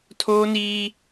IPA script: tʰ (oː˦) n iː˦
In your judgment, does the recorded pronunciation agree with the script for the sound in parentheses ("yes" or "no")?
yes